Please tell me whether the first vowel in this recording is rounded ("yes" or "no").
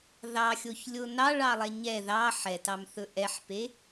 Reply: no